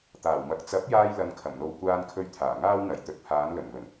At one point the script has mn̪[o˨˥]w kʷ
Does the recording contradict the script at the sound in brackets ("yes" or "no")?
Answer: yes